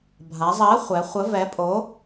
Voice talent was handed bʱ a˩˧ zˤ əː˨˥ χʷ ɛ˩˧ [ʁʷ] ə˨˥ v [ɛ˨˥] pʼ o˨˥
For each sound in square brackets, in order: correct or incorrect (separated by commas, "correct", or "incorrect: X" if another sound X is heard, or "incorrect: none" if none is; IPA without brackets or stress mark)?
incorrect: χʷ, correct